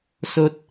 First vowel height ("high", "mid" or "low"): mid